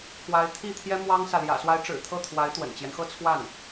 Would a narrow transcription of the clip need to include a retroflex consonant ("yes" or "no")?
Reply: yes